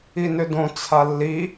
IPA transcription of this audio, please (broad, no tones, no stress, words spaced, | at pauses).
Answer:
inʏdõ t͡sʰalːi